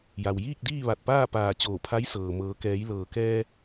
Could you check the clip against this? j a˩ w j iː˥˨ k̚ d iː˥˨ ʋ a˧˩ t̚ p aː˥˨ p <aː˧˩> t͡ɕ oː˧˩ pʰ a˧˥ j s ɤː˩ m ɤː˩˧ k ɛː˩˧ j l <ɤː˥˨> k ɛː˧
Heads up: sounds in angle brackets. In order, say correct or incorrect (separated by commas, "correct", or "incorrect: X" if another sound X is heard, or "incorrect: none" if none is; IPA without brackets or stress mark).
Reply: correct, incorrect: ɤː˩